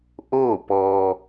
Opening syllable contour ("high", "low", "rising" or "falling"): falling